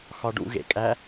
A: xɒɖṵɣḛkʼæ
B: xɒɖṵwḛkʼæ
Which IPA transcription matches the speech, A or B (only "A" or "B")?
A